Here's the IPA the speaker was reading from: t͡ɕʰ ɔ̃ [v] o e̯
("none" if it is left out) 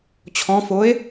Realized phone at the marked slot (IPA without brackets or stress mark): f